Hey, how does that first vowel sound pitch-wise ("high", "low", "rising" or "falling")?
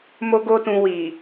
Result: high